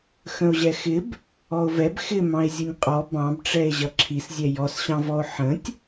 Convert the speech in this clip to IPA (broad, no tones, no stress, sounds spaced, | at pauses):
x ə̃ o̯ ʑ ɛ x ɪ b | ɔ o̯ v ɛ b x ɪ m ɑ̃ e̯ zʲ ʊ nʲ qʼ ɔ b ɑ̃ b ʈ͡ʂ ɛ e̯ ʑ ʌ ǁʰ i s zʲ ɛ j ɔ s ɕ ɑ̃ v ɔ o̯ ħ ə̃ tʲ